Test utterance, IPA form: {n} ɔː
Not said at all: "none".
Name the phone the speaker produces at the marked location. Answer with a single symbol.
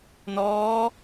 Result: n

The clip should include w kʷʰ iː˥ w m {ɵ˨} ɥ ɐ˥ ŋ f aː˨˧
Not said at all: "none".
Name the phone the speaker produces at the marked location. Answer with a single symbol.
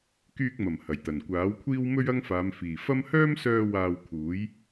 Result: ɵ˥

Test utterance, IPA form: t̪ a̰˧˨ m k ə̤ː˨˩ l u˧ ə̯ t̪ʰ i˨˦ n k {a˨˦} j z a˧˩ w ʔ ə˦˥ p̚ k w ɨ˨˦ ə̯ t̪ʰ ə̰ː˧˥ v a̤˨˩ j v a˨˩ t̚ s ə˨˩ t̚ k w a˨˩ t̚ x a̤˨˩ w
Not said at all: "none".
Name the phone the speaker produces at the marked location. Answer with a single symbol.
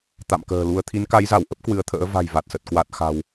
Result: a˨˦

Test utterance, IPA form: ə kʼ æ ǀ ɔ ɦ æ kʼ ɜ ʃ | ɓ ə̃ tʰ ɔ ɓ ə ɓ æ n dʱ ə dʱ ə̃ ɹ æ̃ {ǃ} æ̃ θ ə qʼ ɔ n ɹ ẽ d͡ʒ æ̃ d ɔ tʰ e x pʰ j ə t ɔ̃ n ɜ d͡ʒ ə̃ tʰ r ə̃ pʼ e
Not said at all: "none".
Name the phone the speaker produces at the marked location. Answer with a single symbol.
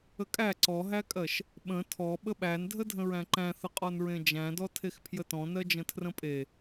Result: ǃ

